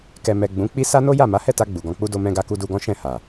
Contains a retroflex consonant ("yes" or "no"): no